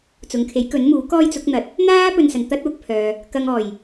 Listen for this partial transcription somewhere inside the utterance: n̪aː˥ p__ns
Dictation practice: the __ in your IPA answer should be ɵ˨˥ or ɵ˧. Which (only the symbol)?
ɵ˧